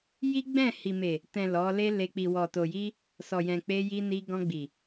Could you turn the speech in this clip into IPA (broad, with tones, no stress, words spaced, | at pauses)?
ji˦ɡ͡bɛ̃˦˨ hi˨me˨ | tɛ̃˨ lɔ˨˦ le˦le˧ k͡pi˨wɔ˨to˨ji˧ | sɔ˨jɛ̃˨ k͡pe˧ji˧ni˧ ɡɔ̃˧ɡ͡bi˨